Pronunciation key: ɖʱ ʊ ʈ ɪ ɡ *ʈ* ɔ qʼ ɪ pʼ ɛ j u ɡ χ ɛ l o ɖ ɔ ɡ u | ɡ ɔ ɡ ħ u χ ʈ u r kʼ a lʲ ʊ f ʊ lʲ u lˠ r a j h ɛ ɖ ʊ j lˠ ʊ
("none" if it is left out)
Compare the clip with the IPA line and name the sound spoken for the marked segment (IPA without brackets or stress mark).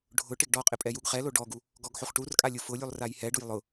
ɖ